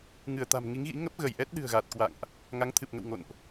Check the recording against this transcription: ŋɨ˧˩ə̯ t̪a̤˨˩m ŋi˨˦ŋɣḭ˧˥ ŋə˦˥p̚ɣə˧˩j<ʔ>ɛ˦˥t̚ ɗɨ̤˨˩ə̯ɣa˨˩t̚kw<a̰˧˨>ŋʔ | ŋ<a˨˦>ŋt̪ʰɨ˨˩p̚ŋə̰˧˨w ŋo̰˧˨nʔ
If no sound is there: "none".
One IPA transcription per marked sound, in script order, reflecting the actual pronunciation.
ʔ, a̰˧˨, a˨˦

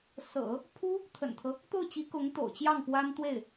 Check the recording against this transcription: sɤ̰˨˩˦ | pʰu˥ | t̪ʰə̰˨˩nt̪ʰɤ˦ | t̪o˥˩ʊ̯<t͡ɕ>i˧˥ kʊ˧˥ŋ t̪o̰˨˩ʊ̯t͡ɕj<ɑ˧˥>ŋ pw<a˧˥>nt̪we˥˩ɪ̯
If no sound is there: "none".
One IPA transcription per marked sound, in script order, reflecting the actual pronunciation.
t͡ɕ, ɑ˥˩, a˥

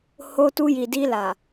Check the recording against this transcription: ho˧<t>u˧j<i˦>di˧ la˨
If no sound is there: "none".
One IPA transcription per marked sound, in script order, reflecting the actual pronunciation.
t, i˨

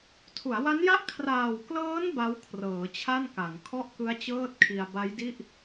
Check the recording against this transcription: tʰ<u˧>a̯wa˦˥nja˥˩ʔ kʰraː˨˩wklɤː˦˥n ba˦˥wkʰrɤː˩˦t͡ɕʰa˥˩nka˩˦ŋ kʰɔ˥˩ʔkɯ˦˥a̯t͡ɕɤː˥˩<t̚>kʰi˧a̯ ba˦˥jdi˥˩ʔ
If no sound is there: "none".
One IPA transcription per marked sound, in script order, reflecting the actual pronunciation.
u˩˦, t̚

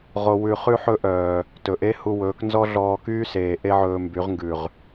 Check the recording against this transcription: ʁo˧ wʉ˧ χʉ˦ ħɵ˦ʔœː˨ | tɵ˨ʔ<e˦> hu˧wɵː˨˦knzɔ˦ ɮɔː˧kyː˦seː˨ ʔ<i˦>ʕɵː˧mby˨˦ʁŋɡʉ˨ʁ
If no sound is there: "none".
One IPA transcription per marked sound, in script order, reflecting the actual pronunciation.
e˦, e˦

